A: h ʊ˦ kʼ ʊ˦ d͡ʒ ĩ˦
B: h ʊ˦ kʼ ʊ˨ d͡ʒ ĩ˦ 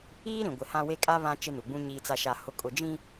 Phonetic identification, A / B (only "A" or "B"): A